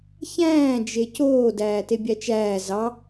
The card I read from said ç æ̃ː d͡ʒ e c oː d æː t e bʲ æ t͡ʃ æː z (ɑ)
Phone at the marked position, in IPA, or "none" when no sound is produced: ɑ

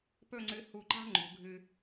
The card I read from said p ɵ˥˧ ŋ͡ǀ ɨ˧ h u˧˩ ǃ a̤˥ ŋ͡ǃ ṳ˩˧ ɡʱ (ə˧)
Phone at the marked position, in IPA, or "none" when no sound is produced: ɨ˧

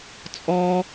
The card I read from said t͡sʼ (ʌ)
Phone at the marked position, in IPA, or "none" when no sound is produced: ɔ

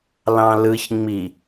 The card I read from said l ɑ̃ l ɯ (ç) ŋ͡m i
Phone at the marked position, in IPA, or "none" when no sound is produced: ç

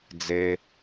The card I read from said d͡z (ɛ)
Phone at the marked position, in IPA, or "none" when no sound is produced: e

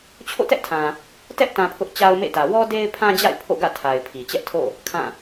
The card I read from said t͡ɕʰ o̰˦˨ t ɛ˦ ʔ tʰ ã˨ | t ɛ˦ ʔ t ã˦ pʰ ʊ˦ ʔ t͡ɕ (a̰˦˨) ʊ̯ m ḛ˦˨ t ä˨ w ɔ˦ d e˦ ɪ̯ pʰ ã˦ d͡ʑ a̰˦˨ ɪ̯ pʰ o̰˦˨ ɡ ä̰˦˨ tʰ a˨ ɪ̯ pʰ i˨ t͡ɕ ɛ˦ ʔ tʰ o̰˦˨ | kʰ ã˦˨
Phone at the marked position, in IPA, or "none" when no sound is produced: a˦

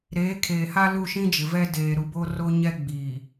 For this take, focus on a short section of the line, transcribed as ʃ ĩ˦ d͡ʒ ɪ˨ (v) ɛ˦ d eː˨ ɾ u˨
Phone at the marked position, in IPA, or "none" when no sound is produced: v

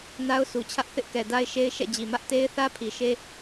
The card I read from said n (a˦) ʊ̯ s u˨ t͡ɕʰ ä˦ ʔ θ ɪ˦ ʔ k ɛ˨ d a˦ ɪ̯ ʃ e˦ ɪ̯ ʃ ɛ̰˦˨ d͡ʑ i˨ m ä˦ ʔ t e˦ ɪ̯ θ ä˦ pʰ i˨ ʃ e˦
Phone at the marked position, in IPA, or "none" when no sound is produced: a˦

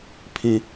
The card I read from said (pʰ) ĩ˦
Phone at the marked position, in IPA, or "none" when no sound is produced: pʰ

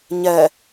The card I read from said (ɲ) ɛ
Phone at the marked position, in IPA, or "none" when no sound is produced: ɲ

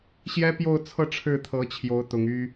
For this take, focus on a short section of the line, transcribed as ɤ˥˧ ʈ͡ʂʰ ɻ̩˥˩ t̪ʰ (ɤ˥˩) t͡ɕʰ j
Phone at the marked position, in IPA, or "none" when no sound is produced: ɤ˧˥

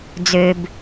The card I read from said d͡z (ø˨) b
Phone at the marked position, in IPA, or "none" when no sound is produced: ø˨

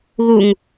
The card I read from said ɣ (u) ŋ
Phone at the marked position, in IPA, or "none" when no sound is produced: u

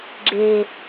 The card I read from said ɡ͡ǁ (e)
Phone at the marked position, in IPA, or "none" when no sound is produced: e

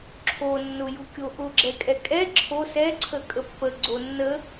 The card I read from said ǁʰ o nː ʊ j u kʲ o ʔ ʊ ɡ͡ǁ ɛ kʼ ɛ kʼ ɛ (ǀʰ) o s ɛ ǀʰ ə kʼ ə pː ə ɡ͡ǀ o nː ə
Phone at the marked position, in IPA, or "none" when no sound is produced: ǁʰ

